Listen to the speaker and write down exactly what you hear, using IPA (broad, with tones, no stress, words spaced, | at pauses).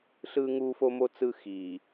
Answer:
ɬɯː˦ŋuː˦fo˦mo˦ t͡sɯ˦ xi˨